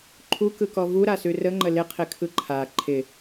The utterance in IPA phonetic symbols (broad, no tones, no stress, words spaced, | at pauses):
ǃʰukɯkɔ vuɾasʉ rəŋ͡ǃə lɪqʰɪkʰɯ ǃʰa ǃʰɪ